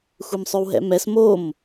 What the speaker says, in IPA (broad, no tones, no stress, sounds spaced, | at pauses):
xʷ e m sˤ ø w ɦ ɛ̰ m ɛ s m o m